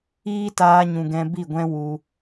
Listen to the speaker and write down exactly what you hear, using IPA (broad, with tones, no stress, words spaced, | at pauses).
iː˦taː˧ɲũ˨ ɡɛ̃˧bi˦˨ɡʷɛ̃˦ wu˧